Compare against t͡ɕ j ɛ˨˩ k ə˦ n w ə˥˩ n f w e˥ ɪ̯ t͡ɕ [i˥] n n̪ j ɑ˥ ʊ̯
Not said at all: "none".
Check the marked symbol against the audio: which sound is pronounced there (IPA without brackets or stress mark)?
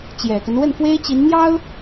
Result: i˧˥